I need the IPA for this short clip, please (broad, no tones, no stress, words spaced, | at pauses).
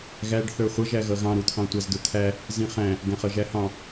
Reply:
ɣæɖθə˞ χʷʌʒæ ɣʌɣɑ̃ɾut̪ʰɑ̃ tʷæzdʊt̪ʰæ | zĩχæ̃ | ɡæ̃χʌʒæhɑ̃